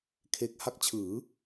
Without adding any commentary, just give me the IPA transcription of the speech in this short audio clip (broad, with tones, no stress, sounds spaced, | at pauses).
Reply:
kʰ e˦˥ k̚ h a˦˥ k̚ t͡ɕʰ ɯː˩˦